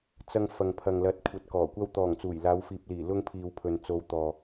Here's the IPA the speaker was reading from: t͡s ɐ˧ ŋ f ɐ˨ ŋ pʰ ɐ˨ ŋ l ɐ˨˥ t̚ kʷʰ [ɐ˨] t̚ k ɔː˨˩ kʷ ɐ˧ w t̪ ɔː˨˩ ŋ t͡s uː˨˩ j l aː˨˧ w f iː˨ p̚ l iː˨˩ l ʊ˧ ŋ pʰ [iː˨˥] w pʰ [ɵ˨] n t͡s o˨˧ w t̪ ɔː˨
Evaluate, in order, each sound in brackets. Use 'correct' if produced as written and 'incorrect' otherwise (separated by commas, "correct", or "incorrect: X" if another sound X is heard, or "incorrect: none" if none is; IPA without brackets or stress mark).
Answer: correct, incorrect: iː˨, correct